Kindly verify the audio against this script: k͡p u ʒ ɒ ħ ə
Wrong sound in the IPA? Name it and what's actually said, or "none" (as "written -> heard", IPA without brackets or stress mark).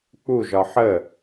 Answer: none